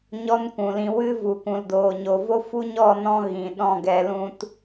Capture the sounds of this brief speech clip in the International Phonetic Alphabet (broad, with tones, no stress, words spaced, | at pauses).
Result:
ɲɔ˦nkʷũ˨lĩ˧ wɨ˦vu˨ kʷũ˨ldoː˨ɲo˨ vo˦fu˦ɲɔ˦˨nɔ̃˧ ɣĩ˨ɗɔ̃˦˨ɡɛ˧lũ˦t